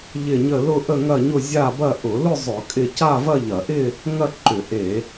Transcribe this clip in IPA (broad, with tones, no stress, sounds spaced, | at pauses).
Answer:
ʎ ɪ˥˧ ɲ ə˥˧ l ʊ˥˧ ʔ ə˥˧ ŋ ɐ˥˧ ɲ ʊ˥˧ zʲ a˥˧ b ɐ˥˧ ʔ ʊ˧˩˧ l ʊ˥˧ zˤ ʊ˧˩˧ kʼ ɪ˥˧ c a˥˧ v ɐ˥˧ ʎ ɐ˧˩˧ ʔ ɪ˥˧ | ŋ ɐ˥˧ ǃ ʏ˧˩˧ ʔ e˧˩˧